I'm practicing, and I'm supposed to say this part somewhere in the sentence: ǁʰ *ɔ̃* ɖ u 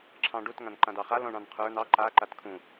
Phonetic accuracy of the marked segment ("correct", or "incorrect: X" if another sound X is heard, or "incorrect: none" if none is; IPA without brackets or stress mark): incorrect: ɑ̃